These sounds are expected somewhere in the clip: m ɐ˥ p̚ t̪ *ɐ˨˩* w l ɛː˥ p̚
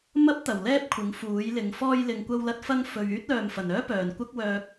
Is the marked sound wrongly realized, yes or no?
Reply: no